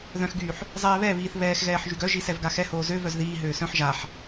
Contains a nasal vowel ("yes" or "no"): yes